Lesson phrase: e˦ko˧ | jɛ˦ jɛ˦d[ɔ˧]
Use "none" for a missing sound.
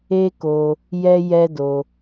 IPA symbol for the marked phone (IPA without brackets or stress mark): o˧